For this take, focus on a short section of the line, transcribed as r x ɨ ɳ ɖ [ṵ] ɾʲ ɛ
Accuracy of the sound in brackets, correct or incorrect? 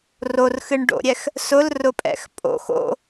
incorrect